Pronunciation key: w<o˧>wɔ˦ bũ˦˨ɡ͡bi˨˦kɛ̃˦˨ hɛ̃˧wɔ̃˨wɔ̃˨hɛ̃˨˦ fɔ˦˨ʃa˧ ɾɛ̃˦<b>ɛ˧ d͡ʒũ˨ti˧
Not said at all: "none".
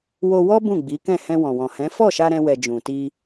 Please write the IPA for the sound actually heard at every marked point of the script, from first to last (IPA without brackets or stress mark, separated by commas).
o˧, w